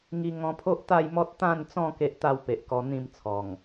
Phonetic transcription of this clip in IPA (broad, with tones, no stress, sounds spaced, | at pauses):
ŋ i˧ ŋ ɔ̃˧ pʰ o˦ ʔ t̪ a˥˧ j m ɔ˦ t̚ t̪ ã˥˧ n t͡s ɔ̃˥˧ k e˦ ʔ t̪ a˥˧ w p e˨ ʔ k ɔ˧ n̪ ĩ˥˧ m t͡sʰ ɔ˨˩ ŋ